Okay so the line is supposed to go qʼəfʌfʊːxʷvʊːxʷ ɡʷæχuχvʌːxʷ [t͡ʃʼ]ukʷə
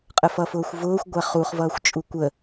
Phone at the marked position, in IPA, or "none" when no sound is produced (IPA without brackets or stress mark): t͡ʃʼ